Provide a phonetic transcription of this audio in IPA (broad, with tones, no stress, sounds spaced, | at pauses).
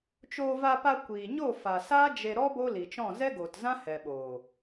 t͡ʃ oː˧ v a˧ p a˧ kʷ iː˨ ɲ o˦˨ f a˨ s aː˦ d͡ʒ e˧ ɾ ɔ˦ b o˦ l i˨ t͡ʃ ɔ̃˦˨ z ɛ˦ ɡ oː˨ t z ã˦ h ɛ˨ ɓ oː˨